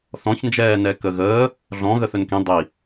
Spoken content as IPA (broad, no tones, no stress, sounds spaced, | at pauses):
θ ɔ̃ ç n d͡ʒ ɛː n ɛ k ə ɣ əː | ɮ ɔ̃ ɣ ə θ ɵ n k ĩ dˤ i